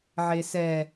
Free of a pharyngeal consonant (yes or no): no